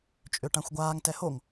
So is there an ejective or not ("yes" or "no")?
yes